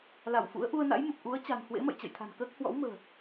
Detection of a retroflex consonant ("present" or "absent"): absent